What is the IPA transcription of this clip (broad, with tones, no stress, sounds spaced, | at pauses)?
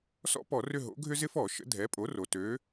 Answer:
s ɔ̰˥ p ɔ˧˩˧ r ʏ˦˨ ɦ o̰˩˥ ɡʱ ʏ˥ z ɪ˥ f ɔ˧˩˧ ʃ ə̰˩˥ dʱ ɛ˩˥ pʼ o˩˥ r o˩ t ø˩˥